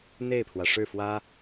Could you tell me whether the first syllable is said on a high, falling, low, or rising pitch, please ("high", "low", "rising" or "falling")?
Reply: falling